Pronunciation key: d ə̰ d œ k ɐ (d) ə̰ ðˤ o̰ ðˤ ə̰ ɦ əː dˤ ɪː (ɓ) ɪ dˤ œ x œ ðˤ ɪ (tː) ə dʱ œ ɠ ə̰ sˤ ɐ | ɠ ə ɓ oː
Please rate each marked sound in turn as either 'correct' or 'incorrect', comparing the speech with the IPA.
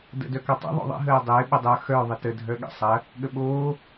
incorrect, correct, incorrect

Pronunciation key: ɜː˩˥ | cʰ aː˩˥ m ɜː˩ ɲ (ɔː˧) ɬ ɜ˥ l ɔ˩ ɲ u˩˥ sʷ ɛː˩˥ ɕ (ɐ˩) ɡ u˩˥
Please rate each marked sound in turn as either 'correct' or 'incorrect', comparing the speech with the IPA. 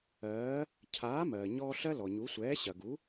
correct, correct

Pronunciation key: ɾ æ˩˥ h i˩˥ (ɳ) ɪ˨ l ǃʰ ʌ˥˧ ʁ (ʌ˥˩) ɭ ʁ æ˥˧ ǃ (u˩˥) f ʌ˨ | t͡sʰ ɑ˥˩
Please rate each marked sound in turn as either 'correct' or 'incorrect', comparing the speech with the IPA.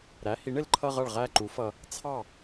correct, correct, correct

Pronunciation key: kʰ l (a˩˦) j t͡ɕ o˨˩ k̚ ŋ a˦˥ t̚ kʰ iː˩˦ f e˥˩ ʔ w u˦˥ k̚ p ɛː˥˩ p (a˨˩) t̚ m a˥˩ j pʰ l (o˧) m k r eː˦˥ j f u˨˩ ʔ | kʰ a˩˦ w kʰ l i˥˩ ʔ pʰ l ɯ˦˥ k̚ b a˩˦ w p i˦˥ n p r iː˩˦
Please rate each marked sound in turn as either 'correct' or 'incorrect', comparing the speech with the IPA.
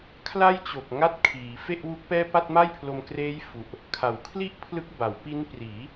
incorrect, incorrect, correct

